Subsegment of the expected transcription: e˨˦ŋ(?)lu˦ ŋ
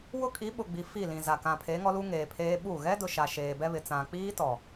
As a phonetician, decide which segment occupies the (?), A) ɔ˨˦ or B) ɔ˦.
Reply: B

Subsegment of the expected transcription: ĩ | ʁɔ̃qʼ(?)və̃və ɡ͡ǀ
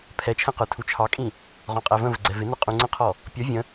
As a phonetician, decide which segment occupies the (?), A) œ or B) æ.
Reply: B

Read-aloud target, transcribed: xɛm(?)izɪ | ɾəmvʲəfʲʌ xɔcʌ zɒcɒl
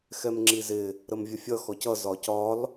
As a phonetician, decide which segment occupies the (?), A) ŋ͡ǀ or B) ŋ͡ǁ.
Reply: B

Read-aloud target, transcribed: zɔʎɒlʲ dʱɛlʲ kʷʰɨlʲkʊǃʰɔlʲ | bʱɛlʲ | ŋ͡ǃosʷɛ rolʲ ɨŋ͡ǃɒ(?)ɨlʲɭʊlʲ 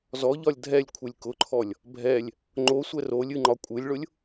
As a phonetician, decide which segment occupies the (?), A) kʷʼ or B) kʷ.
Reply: A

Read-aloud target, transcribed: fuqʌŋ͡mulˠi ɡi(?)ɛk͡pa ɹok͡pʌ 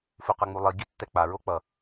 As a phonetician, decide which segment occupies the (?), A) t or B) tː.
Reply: B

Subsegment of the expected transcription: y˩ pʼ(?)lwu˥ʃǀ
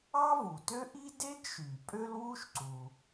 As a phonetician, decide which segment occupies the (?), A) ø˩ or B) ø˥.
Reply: B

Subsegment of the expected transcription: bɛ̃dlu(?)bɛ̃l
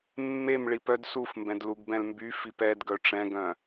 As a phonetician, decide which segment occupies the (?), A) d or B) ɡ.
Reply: B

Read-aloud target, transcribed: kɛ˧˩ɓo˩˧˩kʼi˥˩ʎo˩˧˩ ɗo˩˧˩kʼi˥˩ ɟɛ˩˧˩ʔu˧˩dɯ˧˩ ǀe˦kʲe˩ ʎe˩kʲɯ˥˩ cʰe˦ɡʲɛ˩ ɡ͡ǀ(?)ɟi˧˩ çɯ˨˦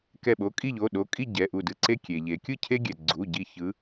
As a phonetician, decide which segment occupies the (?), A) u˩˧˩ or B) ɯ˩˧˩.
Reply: A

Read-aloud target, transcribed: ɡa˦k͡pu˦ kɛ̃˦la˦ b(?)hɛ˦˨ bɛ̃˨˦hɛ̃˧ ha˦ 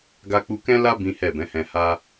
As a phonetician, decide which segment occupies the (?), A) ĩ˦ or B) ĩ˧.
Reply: A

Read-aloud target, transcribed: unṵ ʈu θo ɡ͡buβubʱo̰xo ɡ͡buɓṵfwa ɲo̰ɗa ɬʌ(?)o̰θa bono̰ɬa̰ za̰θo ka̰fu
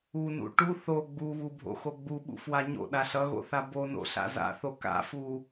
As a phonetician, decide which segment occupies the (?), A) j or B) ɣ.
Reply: B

